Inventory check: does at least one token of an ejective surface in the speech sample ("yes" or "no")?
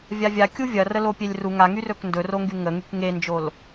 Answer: no